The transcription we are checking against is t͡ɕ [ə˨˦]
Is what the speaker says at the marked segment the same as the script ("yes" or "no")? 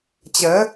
yes